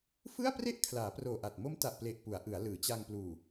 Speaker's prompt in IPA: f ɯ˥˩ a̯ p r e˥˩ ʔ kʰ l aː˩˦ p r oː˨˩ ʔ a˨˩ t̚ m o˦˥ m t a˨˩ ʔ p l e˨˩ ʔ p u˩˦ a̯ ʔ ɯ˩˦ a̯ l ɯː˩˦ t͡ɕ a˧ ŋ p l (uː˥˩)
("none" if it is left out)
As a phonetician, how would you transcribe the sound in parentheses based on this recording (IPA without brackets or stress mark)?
uː˨˩